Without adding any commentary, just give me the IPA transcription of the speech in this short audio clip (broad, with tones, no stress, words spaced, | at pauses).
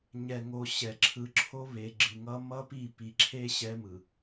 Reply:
ɲɛ˨ŋo˨ ɕɛ˨ǁʰɯ˨ǁʰo˦ βe˨ɡ͡ǁɯ˨ŋʌ˦ mʌ˦pi˦˨ pi˨ǁʰe˦ ɕɛ˦mɯ˨